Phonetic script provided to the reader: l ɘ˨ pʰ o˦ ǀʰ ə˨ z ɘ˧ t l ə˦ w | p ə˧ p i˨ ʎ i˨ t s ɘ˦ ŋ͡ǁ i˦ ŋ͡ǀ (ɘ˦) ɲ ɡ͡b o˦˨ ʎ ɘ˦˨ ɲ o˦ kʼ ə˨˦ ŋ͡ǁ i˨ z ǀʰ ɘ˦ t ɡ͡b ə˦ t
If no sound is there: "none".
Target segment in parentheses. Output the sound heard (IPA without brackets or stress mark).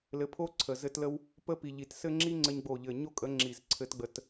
ɘ˦